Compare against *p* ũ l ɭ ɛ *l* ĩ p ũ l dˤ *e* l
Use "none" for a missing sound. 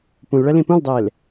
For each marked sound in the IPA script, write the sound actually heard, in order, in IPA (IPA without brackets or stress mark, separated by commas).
p, l, eː